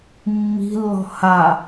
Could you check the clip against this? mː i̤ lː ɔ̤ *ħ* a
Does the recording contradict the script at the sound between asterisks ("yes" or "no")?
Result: yes